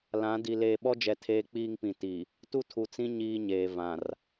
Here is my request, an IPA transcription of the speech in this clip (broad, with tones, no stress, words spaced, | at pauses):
lã˨˦ di˨ leː˨ɓɔ˦d͡ʒɛ˨ tʰeː˦ k͡piː˦ŋpĩ˨ ti˨ | tu˦tʰu˨t͡sĩ˦ ɲiː˦ɲeː˨vã˨r